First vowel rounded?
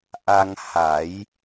no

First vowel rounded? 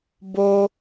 yes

